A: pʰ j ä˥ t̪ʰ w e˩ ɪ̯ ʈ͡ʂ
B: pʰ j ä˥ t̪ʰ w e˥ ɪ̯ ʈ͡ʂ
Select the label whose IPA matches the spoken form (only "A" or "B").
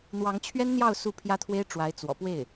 B